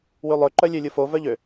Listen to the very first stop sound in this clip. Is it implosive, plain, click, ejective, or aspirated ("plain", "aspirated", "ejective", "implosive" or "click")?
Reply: click